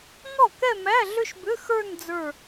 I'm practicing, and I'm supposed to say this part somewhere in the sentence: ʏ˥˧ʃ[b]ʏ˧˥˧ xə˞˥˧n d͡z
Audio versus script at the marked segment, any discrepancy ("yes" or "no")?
no